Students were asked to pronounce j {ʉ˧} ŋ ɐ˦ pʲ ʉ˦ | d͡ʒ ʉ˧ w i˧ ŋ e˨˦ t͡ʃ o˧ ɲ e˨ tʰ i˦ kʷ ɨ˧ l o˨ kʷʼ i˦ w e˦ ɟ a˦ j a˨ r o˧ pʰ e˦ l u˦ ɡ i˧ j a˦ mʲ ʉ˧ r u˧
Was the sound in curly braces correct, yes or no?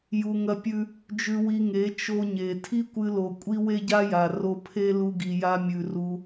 no